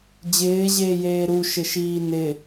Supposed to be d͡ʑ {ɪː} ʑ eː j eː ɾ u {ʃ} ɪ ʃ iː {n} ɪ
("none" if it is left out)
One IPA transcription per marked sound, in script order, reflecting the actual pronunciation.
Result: ɪː, ʃ, n

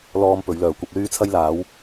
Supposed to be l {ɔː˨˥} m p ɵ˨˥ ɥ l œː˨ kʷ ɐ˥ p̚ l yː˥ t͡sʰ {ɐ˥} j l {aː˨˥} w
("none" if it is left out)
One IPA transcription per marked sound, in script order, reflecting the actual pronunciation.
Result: ɔː˧, ɐ˥, aː˨˥

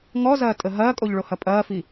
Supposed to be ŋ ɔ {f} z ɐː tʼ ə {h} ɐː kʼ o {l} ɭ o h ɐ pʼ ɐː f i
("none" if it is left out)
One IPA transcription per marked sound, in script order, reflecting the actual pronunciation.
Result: none, ɦ, ʎ

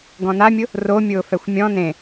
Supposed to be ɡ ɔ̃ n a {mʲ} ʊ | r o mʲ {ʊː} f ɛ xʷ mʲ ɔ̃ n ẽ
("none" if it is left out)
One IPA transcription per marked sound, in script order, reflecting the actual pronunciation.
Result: mʲ, ʊː

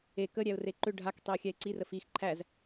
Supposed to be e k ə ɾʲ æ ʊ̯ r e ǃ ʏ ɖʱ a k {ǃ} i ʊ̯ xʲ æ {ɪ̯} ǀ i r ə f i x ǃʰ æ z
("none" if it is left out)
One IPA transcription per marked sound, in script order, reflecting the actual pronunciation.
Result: tˤ, ɪ̯

